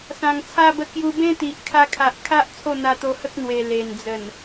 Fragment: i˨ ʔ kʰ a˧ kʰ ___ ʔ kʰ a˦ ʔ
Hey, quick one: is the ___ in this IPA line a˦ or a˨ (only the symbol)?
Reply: a˨